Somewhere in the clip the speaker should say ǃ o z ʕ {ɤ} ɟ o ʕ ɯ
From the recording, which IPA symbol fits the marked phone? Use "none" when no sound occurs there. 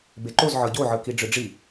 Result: ɤ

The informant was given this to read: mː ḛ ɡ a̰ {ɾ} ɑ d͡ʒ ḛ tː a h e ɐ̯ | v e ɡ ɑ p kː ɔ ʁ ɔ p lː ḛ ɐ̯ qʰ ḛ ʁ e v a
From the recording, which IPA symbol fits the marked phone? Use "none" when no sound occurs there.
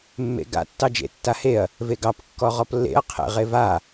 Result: tː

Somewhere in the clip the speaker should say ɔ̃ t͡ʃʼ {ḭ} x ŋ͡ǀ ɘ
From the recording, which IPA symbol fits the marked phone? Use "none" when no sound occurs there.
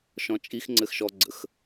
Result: i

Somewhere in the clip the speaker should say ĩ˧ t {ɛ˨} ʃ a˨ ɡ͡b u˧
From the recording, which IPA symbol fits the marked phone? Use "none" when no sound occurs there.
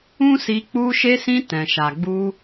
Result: ɛ̃˨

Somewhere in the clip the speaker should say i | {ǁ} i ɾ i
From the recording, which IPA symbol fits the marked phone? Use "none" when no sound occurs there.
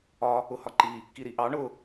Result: k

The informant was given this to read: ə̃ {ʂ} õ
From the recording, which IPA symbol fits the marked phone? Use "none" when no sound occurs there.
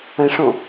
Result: ʂ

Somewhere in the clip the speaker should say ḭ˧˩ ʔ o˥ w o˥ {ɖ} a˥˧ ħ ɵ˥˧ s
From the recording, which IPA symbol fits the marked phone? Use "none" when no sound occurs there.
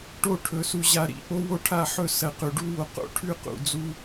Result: ʈʰ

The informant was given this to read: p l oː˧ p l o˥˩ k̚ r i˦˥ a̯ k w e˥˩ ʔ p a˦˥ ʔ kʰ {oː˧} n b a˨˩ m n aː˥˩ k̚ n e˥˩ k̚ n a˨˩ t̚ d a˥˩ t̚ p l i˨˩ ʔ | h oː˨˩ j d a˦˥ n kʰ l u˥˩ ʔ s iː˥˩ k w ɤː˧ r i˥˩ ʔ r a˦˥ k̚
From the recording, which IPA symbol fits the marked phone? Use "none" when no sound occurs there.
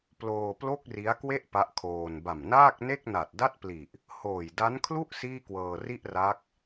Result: oː˧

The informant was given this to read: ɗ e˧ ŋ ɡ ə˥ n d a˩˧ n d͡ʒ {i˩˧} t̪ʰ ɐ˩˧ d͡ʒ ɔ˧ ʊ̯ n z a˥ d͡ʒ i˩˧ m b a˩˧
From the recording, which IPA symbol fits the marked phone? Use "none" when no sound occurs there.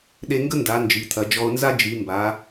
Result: i˩˧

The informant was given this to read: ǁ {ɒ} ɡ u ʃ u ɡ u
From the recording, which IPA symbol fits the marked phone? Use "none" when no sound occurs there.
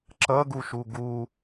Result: ʌ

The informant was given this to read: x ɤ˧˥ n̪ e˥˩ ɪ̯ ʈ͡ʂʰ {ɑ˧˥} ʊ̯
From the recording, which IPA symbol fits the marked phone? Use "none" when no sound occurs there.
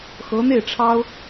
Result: ɑ˥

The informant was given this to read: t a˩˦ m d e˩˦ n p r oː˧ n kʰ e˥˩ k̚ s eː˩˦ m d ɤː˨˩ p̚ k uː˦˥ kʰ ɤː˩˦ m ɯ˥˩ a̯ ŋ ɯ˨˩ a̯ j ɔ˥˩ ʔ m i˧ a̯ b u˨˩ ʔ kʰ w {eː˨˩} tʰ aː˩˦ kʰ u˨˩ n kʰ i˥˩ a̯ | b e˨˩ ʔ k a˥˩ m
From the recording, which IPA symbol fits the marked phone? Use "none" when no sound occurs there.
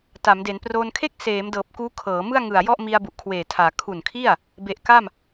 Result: eː˨˩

